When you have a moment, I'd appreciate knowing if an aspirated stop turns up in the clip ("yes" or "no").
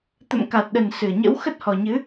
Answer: no